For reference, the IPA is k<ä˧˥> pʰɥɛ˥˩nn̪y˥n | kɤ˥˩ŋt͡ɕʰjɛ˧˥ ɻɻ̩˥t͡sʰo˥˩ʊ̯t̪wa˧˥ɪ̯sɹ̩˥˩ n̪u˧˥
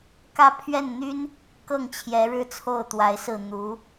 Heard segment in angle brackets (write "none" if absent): ä˥˧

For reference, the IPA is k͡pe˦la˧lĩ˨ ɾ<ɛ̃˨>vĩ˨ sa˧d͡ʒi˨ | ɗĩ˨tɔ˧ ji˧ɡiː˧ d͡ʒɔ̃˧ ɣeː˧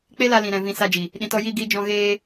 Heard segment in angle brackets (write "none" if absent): ɛ̃˨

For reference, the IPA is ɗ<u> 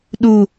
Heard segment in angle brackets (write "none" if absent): u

